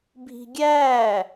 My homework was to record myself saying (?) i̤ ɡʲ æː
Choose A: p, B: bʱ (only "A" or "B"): B